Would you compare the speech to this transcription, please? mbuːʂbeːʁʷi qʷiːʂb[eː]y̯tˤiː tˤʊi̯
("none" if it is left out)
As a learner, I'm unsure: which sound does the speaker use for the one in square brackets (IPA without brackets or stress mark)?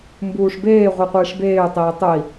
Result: eː